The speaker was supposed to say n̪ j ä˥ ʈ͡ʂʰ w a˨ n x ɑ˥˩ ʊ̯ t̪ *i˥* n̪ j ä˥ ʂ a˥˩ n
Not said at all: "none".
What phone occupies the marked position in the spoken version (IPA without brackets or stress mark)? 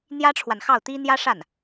i˥